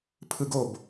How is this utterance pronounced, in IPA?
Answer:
pʰɯ˧ɡo˦˨b

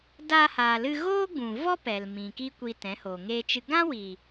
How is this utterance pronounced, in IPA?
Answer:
daː˧haː˨lɨ˧ ɣoː˦ɡ͡bũ˨vɔ˦ pɛ˨lmĩ˨ ki˦kʷiː˧tɛ̃˨˦hoː˨ ŋeː˧t͡ʃɨ˧ ɡã˦wiː˨

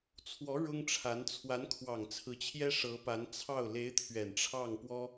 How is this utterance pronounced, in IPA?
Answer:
t͡sʰwɔ˧˥ ɻʊ˥ŋʈ͡ʂʰa˧˥n t͡sʰwa˧˥nkʰwɑ˨˩ŋ t͡sʰɹ̩˧˥t͡ɕʰjɛ˥ ʂɤ˧˥pa˧˥n t͡sʰɑ˥˩ʊ̯ le˧˥ɪ̯ t̪ʰɥɛ˨˩nʈ͡ʂʰɑ˥˩ŋ pwɔ˥

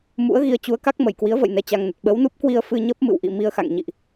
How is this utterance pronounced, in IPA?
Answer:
mṵ˧˥ə̯ɣi˨˦ə̯ t͡ɕu˨˦ə̯ka˦˥k̚ mə˧˩jkwi˨˦ə̯və̰˧˨j nɛ˧t͡ɕa˧ŋnə˨˩t̚ ɓə˨˦wnu˦˥p̚kwi˧ə̯ fɨ˧ɲə˦˥p̚ mɨ̰˧˨wʔḭ˧˨ mi˧ə̯xa̰˧˨ŋ ɲḭ˧˨ʔ

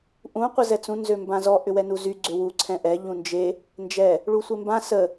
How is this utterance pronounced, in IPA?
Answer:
ʔũ qʷəzɛt͡sũ nzømbãzɔ ʔʏwɛnuzy ɡ͡ǀʏwu ǀʰɛ̃ʔɛ ʎũnd͡ʒe | nd͡ʒɛ | ɭusʷembã sə

